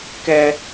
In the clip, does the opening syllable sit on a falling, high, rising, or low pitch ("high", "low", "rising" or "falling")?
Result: low